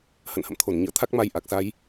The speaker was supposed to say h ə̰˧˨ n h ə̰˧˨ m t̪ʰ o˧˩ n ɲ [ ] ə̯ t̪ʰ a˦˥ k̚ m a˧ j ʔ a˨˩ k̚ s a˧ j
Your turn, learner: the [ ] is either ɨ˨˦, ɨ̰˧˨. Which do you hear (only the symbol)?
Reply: ɨ̰˧˨